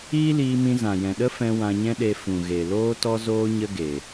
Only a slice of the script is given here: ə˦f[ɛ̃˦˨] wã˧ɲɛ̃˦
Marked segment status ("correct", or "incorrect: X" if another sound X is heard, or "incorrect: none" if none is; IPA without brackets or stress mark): incorrect: ɛ̃˧